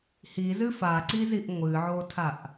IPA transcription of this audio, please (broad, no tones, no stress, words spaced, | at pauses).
hizɨ faǀiziʔ ŋʷɨʕotʰaʔ